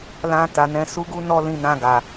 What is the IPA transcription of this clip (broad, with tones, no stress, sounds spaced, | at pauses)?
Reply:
l ã˨ t a˨ n ɛ̃˨˦ s u˦ ɡ u˦ n ɔ˦ l ĩ˧ n ã˧ ɡ a˨